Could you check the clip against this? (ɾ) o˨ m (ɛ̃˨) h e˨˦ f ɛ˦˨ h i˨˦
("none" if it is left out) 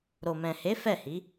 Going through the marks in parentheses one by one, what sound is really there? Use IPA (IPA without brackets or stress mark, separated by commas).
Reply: ɾ, ɛ̃˨